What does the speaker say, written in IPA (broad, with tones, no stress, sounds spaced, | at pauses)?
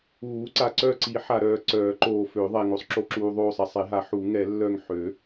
uː˨˩˦ ǀ a˨ ǀ œ˦˨ ǀ i˨˩˦ ħ a˨ ɾ œː˨ ǀ œː˨˩˦ ǃ oː˨ f ø˨˩˦ ðˤ ɛ˨ ŋ o˨ sˤ ǁ o˦˨ ǁ uː˨ ðˤ oː˦˨ sˤ ɛ˨ sˤ e˨˩˦ ɦ a˨˩˦ ħ u˨˩˦ ŋ ɛ˨˩˦ lː œ˦˨ ŋ ħ ø˨˩˦